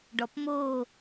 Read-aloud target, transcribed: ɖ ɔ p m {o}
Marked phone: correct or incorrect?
correct